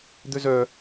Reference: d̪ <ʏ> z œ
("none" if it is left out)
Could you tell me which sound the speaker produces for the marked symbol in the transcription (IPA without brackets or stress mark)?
ʏ